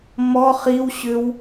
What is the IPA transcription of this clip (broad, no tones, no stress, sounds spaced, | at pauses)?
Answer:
m ɔ χ i w ɕ ʏ w